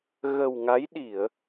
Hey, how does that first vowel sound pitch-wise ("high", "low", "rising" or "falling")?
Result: low